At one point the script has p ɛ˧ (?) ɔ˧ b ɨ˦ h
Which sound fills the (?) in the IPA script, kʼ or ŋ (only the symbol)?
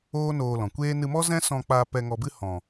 ŋ